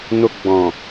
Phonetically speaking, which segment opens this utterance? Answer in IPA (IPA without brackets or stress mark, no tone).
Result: n